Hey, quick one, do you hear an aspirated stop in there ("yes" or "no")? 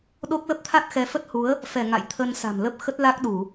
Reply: yes